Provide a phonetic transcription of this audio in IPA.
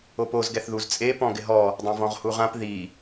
o p o z ɡ ɛ θ ð u z t͡sʼ e p ɔ̃ ɡ ɪ ɦ ɔ | dˤ ẽ v ɔ̃ ʁ h u ʁ ã p ð i

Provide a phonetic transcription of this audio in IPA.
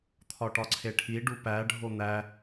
t̪ʰ ɒ ʈ ɒ ǀʰ e ʈʰ i ɖ u p æ ɖʱ o n̪ æ

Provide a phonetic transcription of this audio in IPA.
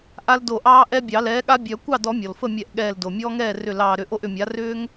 ʔ a˦ l d o˧˩ ʔ ɑː˦ ʔ ɛ˦ bʲ ɑ˨˩˦ l ɛː˩˥ ɠ a˦ bʲ œ˨˩˦ kʷ ɑ˥˩ d ɔ˨˩˦ mʲ ɔ˩ l f ə˥˩ mʲ ɛ˧˩ ʔ ɠ ɛː˧˩ l d o˩ mʲ ɔː˦ ŋ ɛː˥˩ r ʏ˧˩ l ɑː˧˩ ɾ ʏ˧˩ ʔ o˥˩ ʔ ʏ˧˩ mʲ a˩˥ r ʏː˦ ŋ

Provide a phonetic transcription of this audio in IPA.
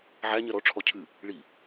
ʕ æ ɲ ɜ ɾ ɔ ʈ͡ʂʰ ɔ cʰ ɨ | ɭ i

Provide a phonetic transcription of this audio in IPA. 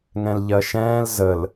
ŋ ɛ̃ l ʎ ɜ ʃ ɛ̃ː l z ə l

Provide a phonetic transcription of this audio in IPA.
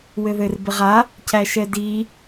w ɘ ð ɘ r b ɪ ʁ a | c æ ʃ ɛ d i

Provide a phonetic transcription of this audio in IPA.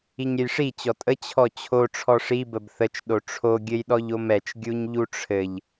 i ɲ ɾʲ ə j ʂ i t͡ɕ ɔ tʼ ə t͡ɕʰ ɔ t͡ɕʰ o ʈ͡ʂʰ ɔ ʂ i b ə b θ ə t͡ʃ ɗ o ʈ͡ʂʰ o ɡʲ ɘ j ɗ ɔ ʎ o m ɛ t͡ʃ ɡʲ u ɲ ʎ u ʈ͡ʂʰ ɘ ʎ

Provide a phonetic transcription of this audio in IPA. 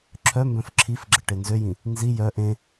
ǁʰ œ m b œ̃ f ǁʰ i f ɡ͡ǁ ə ʈ e n z ø j ĩ | n z i j œ ʔ ẽ

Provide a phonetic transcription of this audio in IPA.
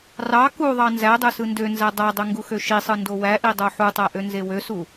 r ɑ k u ðˤ ɑ n z æ dˤ ø s ɯ n d ø n z æ dˤ æ dˤ ø ŋ ɡ u x ø ʃ i sˤ ɯ n d o w æ ʔ i dˤ o ħ u tˤ æ ʔ ø n z e w ø s u

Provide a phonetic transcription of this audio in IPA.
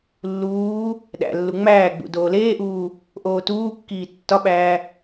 lː uː | ɗ æ̰ lː u ŋ͡m æː ɡ͡b ṵ d oː l eː ʔ uː | ʔ oː t uː kː iː tː ɒ ɓ æː

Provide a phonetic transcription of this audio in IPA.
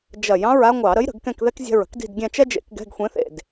d͡ʒ ɐ˧˩˧ j ɑ̃˧˥˧ ɹ a˥ ŋʷ ɑ˧˩˧ ɾ ə˧˥ j ɾ ə̤˧˩˧ ɡ k ɛ̃˦˨ k ð ɛ˥ k zʲ ɛ̤˦˨ ɹ ə̤˥ k d i̤˦˨ d ɡʲ ɛ̃˦˨ t͡ʃ ɛ˥ d͡ʒ ḛ˧˥˧ k ɡ ɛ̤˧˥˧ ɡ xʷ ẽ˧˥ θ ḛ˦˨ d

